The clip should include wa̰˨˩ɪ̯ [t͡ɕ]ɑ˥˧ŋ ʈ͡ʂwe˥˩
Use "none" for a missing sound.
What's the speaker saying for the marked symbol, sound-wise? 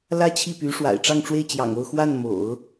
ʈ͡ʂ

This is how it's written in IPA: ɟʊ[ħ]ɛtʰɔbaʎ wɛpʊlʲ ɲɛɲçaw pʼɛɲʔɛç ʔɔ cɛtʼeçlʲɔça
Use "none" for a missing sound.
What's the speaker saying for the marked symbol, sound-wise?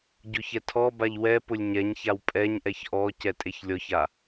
ç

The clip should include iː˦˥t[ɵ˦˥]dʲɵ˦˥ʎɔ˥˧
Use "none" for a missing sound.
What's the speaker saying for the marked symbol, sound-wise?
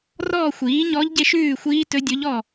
ɵ˦˥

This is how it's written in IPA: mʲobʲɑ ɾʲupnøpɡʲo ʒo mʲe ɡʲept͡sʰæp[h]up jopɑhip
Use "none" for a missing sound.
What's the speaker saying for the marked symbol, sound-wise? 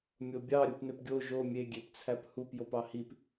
h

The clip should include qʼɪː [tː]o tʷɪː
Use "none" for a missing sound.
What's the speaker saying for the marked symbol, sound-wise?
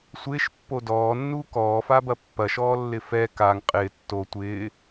tː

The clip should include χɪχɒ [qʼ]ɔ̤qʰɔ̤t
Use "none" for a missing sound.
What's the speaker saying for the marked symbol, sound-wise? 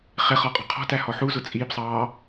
qʼ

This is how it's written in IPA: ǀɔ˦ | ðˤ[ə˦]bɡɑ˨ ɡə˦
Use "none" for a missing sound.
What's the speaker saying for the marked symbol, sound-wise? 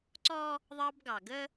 ɑ˦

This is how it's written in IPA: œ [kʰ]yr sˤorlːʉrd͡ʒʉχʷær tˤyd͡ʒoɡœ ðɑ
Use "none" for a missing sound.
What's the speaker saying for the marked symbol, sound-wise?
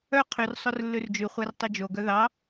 qʰ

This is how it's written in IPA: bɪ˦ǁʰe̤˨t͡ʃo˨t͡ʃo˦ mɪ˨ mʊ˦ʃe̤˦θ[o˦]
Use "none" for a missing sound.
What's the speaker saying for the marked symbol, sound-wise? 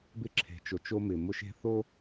o˦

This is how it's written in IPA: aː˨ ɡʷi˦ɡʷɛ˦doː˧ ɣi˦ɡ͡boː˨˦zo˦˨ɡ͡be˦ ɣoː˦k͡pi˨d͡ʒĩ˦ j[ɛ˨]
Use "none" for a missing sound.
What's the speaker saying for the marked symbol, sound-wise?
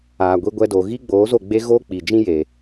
e˨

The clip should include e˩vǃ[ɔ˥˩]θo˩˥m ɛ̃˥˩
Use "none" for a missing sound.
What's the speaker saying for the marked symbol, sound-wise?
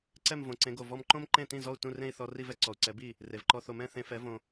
ɔ˧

